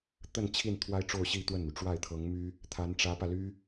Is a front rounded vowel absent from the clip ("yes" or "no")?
no